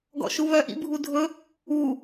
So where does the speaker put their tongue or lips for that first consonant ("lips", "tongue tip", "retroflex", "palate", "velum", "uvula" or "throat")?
velum